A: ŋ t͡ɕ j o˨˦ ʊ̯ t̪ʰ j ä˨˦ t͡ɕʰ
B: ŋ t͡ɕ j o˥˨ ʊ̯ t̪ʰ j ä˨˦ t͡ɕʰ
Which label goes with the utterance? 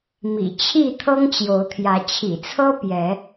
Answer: A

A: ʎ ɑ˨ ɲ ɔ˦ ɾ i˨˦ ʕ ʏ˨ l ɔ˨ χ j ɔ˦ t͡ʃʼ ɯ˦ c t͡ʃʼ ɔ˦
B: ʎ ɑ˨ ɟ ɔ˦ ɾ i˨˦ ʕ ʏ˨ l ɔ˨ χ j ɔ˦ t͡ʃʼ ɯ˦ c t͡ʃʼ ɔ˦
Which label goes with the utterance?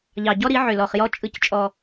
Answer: B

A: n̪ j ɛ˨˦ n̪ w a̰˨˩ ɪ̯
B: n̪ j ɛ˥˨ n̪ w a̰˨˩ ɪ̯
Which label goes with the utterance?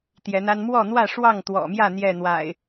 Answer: B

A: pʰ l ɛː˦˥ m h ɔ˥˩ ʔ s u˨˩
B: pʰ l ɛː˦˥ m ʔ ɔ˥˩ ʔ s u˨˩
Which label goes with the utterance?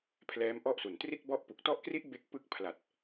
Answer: B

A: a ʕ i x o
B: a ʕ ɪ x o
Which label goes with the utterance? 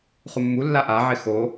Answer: B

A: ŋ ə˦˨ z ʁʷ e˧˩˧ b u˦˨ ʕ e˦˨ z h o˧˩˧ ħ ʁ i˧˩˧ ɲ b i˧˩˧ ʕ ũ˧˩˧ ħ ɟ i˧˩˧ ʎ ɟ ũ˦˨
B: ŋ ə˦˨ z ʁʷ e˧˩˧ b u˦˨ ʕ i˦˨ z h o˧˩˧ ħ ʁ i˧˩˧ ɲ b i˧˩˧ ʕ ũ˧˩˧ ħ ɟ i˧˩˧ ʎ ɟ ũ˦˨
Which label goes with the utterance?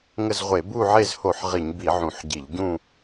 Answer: A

